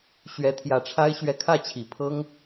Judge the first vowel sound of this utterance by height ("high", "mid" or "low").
mid